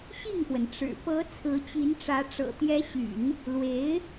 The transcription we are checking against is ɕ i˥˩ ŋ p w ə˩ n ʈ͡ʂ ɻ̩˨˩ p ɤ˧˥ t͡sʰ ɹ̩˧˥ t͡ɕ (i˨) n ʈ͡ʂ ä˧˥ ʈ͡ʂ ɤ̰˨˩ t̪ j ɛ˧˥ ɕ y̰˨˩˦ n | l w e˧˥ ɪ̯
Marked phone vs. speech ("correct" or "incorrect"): incorrect